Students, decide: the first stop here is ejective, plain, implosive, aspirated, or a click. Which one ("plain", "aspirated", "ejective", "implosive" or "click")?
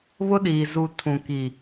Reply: implosive